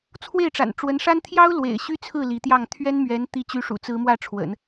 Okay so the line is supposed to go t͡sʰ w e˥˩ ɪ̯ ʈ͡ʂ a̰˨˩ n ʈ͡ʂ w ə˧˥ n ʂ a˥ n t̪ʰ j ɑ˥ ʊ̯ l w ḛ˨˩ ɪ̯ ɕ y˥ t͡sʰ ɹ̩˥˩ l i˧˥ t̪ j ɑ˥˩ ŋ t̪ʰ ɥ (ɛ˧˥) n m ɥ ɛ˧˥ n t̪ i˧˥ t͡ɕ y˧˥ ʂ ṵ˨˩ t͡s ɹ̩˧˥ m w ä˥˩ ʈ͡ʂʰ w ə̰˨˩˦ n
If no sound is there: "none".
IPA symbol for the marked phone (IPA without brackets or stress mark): ɛ˥